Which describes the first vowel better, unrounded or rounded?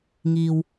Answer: unrounded